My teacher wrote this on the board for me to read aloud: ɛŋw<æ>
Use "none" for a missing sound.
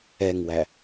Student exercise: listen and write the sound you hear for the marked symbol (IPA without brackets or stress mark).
æ